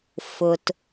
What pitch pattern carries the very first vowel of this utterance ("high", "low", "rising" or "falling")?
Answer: low